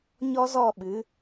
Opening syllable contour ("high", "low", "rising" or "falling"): high